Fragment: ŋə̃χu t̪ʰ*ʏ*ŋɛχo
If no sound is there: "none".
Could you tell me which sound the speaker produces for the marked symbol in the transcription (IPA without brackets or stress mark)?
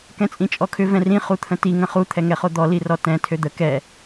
ɛ